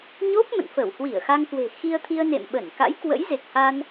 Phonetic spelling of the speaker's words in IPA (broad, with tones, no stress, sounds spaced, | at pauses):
ɲ o˦˥ p̚ m ə̰˧˨ n f ə˧˩ w h w i˧˩ ə̯ x a˧ ŋ k w e̤˨˩ x i˧ ə̯ t̪ʰ i˧ ə̯ n ḛ˧˨ m ɓ ə˧˩ n k a̰˧˥ j k w ə̰˧˥ j z e˨˩ k̚ h a˧ n